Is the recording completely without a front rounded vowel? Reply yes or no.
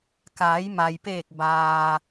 yes